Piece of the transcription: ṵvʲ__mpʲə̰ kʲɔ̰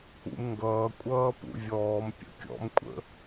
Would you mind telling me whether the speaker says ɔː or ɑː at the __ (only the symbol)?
ɔː